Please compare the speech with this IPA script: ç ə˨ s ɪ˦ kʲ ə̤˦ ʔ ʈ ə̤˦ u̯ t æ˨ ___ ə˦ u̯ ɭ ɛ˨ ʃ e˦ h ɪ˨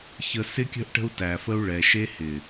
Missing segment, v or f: f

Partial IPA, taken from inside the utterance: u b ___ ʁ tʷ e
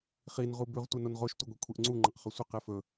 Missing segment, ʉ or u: ʉ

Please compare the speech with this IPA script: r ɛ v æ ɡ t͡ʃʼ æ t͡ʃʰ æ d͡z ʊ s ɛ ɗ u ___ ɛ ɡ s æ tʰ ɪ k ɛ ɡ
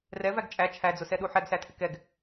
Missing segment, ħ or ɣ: ħ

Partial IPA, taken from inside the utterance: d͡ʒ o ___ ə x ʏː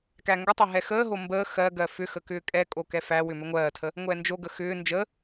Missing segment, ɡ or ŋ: ɡ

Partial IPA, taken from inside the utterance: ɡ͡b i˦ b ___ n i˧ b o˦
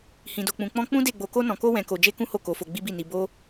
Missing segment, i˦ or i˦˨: i˦˨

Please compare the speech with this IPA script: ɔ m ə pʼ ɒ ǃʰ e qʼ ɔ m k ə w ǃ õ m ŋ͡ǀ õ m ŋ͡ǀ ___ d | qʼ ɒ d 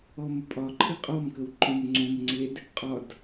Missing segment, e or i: e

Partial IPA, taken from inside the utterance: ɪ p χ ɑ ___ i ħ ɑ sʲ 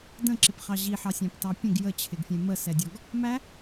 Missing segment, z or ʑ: ʑ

